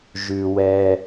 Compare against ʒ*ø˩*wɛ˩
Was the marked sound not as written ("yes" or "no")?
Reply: yes